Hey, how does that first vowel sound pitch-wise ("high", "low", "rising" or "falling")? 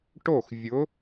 falling